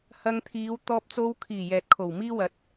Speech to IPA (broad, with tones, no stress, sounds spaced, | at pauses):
h ɐ˧ ŋ t̪ʰ iː˨˧ w t̪ ɔː˧ p̚ t͡s o˧ w kʰ iː˨˩ j ɛː˨ t̚ kʰ o˨˩ w m iː˥ w ɐ˨˥ t̚